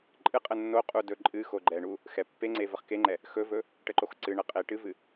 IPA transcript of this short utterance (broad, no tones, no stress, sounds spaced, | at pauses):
ǃʼ ɨ qʼ ə nː o qʼ u d ɵ ǃʼ ɨ x o ɡ͡ǃ ɛ ɳ u | x ɛ pː e ŋ͡ǀ e v ə χ k e ŋ͡ǃ ɛ | x ɵ v ɵ | ʈ ə ǃ o x ǀ ɨ ɳ ə qʼ e ʈ ɨ v ɨ